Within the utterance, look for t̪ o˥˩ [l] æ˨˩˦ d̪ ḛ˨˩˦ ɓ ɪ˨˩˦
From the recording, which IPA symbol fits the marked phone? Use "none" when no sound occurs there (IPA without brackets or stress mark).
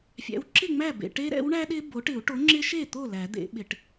l